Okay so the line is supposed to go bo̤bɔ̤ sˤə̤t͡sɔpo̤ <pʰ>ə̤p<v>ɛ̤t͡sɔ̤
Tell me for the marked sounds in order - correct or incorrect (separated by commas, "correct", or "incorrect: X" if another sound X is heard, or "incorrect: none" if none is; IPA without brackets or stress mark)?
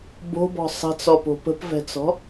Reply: incorrect: p, correct